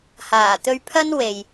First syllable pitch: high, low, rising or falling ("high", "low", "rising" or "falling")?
low